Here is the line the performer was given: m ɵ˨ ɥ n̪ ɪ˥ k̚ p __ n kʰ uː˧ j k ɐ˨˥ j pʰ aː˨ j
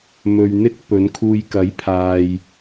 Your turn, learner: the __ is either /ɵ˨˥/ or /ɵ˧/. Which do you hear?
ɵ˨˥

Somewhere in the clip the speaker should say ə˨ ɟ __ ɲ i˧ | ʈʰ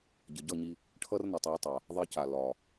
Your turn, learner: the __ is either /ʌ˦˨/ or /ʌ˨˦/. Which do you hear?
ʌ˦˨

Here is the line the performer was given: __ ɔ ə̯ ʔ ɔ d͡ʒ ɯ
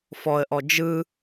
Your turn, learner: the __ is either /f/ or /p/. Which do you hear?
f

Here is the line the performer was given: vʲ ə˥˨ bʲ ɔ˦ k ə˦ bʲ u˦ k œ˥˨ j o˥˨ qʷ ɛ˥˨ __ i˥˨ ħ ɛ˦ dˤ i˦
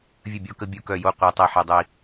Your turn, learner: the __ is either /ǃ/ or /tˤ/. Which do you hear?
tˤ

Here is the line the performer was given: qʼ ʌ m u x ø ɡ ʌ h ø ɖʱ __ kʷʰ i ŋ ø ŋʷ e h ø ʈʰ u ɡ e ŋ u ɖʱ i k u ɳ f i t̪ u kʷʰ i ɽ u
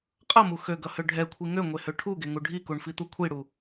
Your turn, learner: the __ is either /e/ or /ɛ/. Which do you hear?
ɛ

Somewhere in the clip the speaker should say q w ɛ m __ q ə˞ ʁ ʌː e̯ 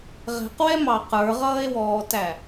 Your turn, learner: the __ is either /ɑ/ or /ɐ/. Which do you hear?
ɑ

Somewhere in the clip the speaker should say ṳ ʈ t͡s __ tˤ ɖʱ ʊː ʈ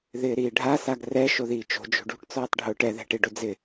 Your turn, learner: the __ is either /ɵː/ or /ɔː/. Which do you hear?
ɔː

